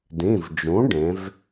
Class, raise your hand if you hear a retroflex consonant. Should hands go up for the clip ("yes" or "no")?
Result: yes